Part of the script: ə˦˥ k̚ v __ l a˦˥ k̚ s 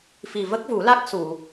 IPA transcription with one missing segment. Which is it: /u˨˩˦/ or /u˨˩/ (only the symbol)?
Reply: u˨˩˦